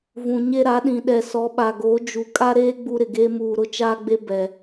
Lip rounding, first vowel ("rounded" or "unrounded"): rounded